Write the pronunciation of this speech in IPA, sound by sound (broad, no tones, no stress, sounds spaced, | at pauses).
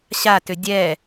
ɕ a t ʏ dʲ ɛ